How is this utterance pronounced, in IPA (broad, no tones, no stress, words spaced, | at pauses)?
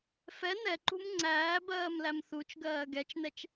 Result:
fɛ nɛǃṳm ŋ͡ǀæː bɜːmlæmθut͡ʃɡɜː ɡɛt͡ʃnɛt͡ʃ